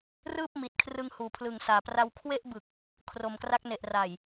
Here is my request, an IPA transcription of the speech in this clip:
r ɯː˥˩ p̚ m i˨˩ t̚ kʰ r ɯ˧ ŋ h uː˨˩ pʰ l ɯ˨˩ ŋ s aː˨˩ p r a˧ w kʰ w e˥˩ ʔ b ɯ˨˩ k̚ | kʰ r o˨˩ m k r a˦˥ k̚ n e˨˩ ʔ r a˨˩ j

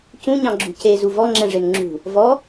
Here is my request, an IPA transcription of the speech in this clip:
c ũ ɲ ɑ̃ ɡ͡ǁ ṳ c e z u v ɔ ŋ͡ǁ ɛ̃ ʐ e n ŋ͡ǁ ṳ | v ɔ

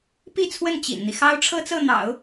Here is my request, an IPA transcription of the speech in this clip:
p i˥˧ t͡sʰ w ə˥˩ n t͡ɕ ḭ˨˩ n n̪ i˦ x ɑ˥ ʊ̯ ʈ͡ʂʰ ɤ˥ t͡s ɤ˥˩ n̪ ɑ̰˨˩˦ ʊ̯

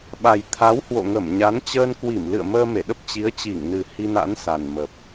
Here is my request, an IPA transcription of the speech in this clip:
ɓ a˨˩ j t̪ʰ a˨˦ w h w o̰˧˨ ŋ ə˧˩ m ɲ a˨˦ n t͡ɕ əː˧ n k w i˧˩ m l ɨ̰˧˨ ə̯ m əː˧ m e˧˩ ɗ ə˦˥ p̚ t͡ɕ i˨˦ ə̯ t͡ɕ i˧˩ ŋ n ɨ˨˩ h i˧ n a̰˧˥ n s a˨˩ n m ə˨˩ p̚

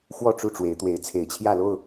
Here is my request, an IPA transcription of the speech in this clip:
x w ɔ˥˨ ʈ͡ʂ u˥˨ ʈ͡ʂ w e˨˦ ɪ̯ t̪ w e˨˦ ɪ̯ t͡sʰ e˨˩ ɪ̯ t͡ɕʰ j ä˥˨ l o˥˨ ʊ̯

